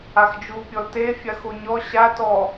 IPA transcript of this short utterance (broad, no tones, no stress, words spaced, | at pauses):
axd͡ʒupʲɔ tefʲax oɲɔ ɕatɔ